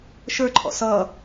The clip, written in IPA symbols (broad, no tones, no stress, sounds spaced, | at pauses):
ʃ ə˞ ǃʰ ɔ̰ s ʌ